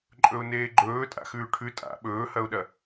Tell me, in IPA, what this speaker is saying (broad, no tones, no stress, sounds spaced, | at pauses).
ǃʼ ɵ ʊ̯ n eː ɡ͡ǃ ɵː tʼ a̰ x ʉː ʈʰ ʉ tʼ a̰ ɓ ɵː h ɐ ʊ̯ ɗ ɐ